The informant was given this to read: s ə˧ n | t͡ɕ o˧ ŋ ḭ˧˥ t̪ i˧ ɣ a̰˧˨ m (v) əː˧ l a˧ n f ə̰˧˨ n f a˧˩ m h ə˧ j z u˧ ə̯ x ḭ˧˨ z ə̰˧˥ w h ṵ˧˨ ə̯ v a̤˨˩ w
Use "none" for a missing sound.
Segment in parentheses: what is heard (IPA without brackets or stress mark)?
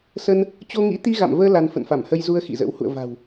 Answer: v